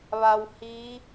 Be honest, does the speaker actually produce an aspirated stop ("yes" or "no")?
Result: no